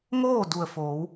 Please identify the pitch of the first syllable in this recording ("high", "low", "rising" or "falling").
falling